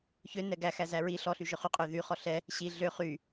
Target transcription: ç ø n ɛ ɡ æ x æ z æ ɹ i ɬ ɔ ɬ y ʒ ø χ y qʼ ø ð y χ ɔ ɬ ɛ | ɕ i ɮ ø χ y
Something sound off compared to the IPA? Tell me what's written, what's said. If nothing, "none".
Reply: none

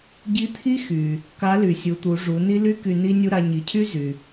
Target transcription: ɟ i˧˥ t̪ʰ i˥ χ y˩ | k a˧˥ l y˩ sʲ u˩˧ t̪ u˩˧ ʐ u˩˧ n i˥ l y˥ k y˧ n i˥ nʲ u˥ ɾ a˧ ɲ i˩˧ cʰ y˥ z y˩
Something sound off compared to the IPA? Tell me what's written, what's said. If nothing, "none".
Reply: χ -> x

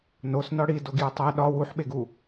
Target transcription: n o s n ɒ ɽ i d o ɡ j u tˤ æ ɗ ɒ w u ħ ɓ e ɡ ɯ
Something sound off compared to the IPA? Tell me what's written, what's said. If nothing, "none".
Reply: ɯ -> u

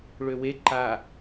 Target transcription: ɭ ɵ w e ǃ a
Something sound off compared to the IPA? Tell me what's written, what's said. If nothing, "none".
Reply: ɵ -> ø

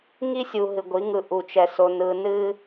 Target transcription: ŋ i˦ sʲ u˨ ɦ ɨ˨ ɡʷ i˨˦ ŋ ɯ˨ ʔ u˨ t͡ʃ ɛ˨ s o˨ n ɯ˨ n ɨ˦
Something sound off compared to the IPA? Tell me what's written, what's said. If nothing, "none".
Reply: none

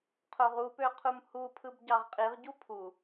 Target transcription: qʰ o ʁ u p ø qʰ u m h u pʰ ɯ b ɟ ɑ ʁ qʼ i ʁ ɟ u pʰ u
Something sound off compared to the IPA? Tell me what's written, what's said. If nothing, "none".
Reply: none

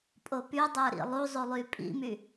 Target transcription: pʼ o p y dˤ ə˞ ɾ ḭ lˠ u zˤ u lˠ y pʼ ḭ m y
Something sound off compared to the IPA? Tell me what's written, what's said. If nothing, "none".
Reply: none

